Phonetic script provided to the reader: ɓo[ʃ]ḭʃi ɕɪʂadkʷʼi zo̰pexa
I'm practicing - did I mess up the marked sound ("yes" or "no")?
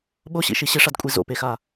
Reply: yes